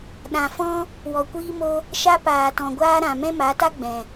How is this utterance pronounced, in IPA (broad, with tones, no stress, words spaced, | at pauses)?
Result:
ɗã˨fɔ̃˦ | wɔ˨kʷiː˧mo˧ | ʃa˧paː˨tɔ̃˨ɡʷaː˧ ɾã˨ mɛ̃˦ma˨˦ta˦ ɡ͡bɛ̃˨